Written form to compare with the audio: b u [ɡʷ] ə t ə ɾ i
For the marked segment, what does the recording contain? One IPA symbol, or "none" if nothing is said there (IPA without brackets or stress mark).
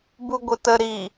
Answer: ɡʷ